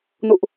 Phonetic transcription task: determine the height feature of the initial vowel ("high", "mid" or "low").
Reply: high